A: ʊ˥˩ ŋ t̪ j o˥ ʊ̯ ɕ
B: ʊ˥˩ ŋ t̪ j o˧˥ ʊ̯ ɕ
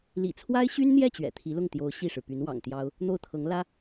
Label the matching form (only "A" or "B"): B